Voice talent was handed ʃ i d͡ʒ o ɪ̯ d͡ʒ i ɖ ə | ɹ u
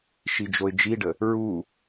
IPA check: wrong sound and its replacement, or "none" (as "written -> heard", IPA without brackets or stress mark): none